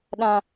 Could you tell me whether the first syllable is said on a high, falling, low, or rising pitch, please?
low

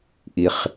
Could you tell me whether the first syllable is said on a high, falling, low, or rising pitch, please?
low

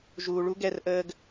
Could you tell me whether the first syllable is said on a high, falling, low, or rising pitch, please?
low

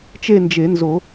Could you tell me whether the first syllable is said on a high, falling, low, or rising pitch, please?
falling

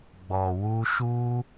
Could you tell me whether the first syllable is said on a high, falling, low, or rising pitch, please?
low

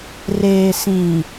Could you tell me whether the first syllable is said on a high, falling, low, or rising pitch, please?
low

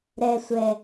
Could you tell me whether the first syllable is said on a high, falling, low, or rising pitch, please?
high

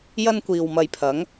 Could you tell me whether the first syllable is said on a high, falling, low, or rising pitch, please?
high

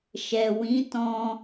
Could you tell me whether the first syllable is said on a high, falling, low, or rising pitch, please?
low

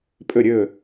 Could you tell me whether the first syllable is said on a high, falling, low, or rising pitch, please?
falling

